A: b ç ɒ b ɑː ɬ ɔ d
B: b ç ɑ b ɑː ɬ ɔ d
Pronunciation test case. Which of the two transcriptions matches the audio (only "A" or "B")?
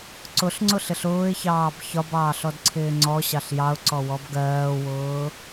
A